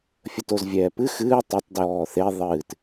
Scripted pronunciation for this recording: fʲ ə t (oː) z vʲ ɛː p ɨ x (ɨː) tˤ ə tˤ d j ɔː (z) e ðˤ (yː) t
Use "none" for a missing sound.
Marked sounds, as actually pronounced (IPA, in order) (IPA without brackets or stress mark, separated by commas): o, ɨː, θ, ɨː